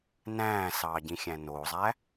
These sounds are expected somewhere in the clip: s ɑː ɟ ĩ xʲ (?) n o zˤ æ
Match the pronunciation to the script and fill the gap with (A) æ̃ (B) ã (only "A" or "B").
A